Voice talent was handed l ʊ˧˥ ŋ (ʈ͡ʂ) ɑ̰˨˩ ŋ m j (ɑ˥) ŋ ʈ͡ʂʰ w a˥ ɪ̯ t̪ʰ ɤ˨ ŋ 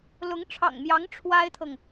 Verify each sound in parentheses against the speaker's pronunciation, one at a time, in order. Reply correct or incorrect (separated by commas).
incorrect, incorrect